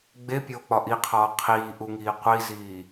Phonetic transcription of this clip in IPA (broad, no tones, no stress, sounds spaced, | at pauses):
ɡ͡b e pʲ oː k͡p ɒ ʔ i qʰ ɒː qʰ iː ʔ u ŋ iː qʷ i z iː